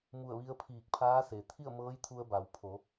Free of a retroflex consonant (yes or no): yes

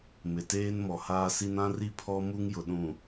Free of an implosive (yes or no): no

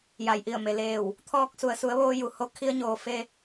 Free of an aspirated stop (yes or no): no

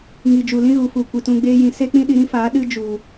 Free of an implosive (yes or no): no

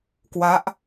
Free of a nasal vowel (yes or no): yes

